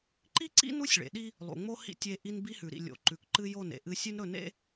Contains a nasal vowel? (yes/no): no